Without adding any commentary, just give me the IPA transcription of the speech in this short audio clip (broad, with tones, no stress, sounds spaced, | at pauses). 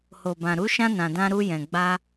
h o˨ b ã˨ ɾ u˨˦ ʃ ã˧ n ã˨ d ã˧ ɾ u˧ j ɛ̃˨ ɡ͡b a˧